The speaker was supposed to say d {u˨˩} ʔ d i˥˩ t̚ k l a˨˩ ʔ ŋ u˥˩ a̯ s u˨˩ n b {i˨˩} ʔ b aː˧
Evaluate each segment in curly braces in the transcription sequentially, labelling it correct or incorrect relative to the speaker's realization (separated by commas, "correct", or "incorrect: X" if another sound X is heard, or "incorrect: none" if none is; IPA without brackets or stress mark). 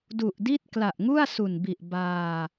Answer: correct, correct